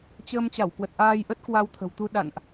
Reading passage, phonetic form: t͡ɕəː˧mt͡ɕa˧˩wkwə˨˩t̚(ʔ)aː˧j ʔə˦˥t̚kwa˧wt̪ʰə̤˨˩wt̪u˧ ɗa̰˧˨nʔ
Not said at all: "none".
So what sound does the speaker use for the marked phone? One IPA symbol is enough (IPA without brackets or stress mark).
ʔ